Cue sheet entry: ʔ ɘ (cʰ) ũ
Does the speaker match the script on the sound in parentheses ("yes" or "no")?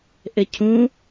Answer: yes